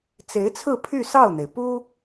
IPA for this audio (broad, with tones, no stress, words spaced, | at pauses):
t͡se˧˥ɪ̯t͡sʰɹ̩˥˧ pʰy˥˧sɑ˥˩ʊ̯n̪e˩ɪ̯ pu˥